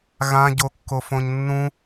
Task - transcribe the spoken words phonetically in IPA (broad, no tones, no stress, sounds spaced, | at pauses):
ɣ ã ɟ o kː o f õ ɲ nː ũ